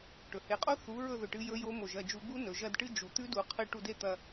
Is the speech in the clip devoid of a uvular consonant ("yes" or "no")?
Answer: no